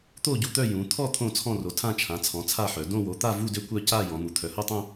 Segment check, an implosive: absent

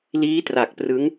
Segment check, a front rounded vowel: absent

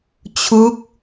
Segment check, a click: absent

